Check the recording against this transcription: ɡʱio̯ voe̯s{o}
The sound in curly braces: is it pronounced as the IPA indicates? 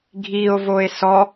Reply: no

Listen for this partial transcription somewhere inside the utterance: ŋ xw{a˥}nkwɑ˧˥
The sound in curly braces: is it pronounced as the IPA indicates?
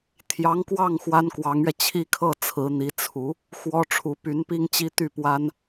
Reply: yes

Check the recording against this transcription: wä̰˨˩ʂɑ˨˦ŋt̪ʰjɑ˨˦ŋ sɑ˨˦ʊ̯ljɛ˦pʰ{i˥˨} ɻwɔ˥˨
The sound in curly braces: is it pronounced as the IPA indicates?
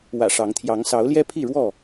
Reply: yes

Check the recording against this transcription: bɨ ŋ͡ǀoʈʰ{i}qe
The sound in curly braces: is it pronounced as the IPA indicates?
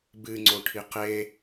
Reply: yes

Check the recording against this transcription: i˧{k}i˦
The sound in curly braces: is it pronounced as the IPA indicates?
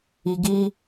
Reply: no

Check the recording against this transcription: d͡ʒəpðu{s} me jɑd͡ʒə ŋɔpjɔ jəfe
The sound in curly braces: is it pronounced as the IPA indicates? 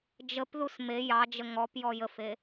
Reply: yes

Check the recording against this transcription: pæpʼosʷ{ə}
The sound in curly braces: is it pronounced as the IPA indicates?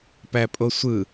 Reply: no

